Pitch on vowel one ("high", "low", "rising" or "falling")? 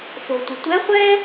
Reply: low